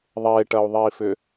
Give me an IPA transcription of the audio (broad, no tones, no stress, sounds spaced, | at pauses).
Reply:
ðˤ e ʈ ɐ u̯ ðˤ i f ʏ